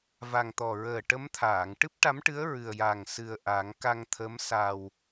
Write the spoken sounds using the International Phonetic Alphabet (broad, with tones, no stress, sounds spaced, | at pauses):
v a˨˩ ŋ t̪ ɔ˨˩ ɹ əː˨˩ ʈ ə˧˥ m t̪ʰ aː˨˩˨ ŋ ʈ ɨ˦˥ p̚ ʈ a˧˥ m ʈ ɨ˧˥ ə̯ ɹ ɨ˨˩ ə̯ j a˨˩ ŋ s ɨ˨˩ ə̯ ʔ a˨˩˦ ŋ k a˧ ŋ t̪ʰ ə˧˥ m s a˨˩ w